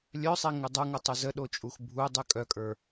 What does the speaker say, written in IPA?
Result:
lʲ œ sˤ e ŋ ʉ dˤ ə˞ ŋ ʊ tˤ u z ə ɗ o t͡ʃʼ u x bʱ u dˤ ʉ kʼ œ kʼ ə˞

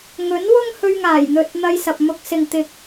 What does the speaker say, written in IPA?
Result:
ŋ ɵ˨˥ n w ʊ˥ ŋ h ɵ˧ ɥ ŋ aː˨˩ j n̪ ɵ˨ t̚ n̪ ɐ˧ j s ɐ˨ p̚ m ʊ˧ k̚ s ɪ˨ ŋ t̪ ɪ˧ k̚

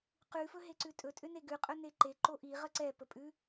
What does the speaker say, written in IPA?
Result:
q ʉ f ɵ ɦ e ǀ ʉ tʼ ɵ tʼ ʏ n e ɡ ʉ qʼ ɵ n e ǃ e ǃ o ʔ i ʁ ə ǀ ɛ p ə pʼ ʉ

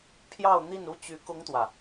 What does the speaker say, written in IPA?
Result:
pʰ j ɑ˥˧ ʊ̯ n̪ i˥˧ n u˥˩ t͡ɕ y˧˥ k ʊ˥ ŋ t̪ w ä˨

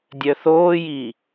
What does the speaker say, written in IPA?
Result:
dʲ œ θ oː j i

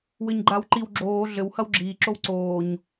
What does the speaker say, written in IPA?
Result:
w ɘ ɲ ɡ͡ǃ a w ǃ i w ɡ͡ǁ oː ɮ ɘ w h ɐ w ɡ͡ǁ iː ǁ o w ǀ oː ɲ

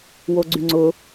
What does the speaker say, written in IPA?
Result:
w o ɡ͡ǀ y ŋ͡ǀ ʊ

